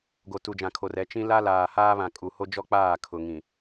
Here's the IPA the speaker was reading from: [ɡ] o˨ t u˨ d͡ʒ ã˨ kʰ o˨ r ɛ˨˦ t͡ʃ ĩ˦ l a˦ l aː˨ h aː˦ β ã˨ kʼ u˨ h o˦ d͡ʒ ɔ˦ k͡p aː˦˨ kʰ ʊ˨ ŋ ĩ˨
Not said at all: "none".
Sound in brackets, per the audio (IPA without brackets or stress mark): ɡ